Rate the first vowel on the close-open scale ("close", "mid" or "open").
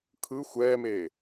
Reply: close